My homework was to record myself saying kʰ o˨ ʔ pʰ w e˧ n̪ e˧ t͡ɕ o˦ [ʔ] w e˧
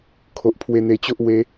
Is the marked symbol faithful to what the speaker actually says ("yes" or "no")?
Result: yes